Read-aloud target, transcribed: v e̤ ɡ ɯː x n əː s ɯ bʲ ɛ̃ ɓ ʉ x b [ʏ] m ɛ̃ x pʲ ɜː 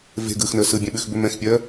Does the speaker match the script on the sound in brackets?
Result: yes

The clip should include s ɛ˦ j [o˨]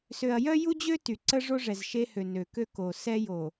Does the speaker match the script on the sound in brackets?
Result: yes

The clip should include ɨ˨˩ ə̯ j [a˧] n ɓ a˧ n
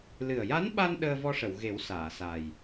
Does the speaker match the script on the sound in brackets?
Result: no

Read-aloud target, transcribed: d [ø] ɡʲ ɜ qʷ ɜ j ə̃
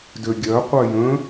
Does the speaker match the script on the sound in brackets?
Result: yes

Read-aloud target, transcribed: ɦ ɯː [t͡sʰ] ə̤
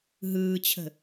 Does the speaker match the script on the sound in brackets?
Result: no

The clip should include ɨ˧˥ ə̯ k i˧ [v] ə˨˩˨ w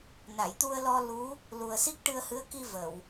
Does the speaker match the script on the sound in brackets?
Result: yes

